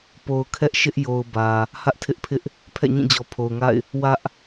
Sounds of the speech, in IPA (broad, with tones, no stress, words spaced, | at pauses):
po˨ʊ̯kʰɛ˦ʔʃɪ˦ʔ jo˨ʊ̯ bä˨ | hä˦ʔtʰɪ˦ʔpʰɪ˦ʔ | pʰɛ̰˦˨ɲĩ˦˨d͡ʑɔ˨ pʰo˨ʊ̯ŋa̰˦˨ɪ̯ | wä˦ʔ